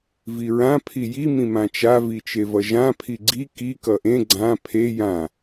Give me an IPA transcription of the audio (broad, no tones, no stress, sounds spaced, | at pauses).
v i ɹ ã pʰ i j i m ĩ m ã t͡ʃ a v i t͡ʃ e v ʌ ʒ ã pʰ i ɡ͡ǀ i k i k ʌ ʔ ẽ ɡ͡ǀ ã pʰ e j ã